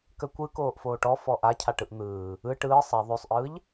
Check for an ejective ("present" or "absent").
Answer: absent